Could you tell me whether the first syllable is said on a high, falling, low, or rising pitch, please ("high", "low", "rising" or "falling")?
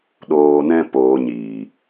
low